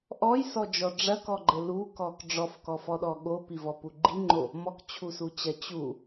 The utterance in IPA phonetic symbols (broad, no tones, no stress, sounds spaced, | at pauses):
ʔ ɔ j s ɔ d͡ʒ ɔ ɖ͡ʐ ɐ k ɔ ɡ͡ǃ ɘ l u k ɔ k ɖ͡ʐ ɔ f k ɔ f ɔ ɗ ɔ ɠ o p i v ɔ p u ɡ͡ǃ i ŋ͡ǃ o | m ɔ k t͡ɕʰ u s u t͡ɕ ɐ t͡ɕ u